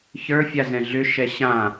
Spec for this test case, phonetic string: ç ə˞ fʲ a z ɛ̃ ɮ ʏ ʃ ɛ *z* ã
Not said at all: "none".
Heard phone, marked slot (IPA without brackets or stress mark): ɕ